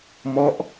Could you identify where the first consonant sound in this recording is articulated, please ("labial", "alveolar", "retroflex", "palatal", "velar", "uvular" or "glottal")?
labial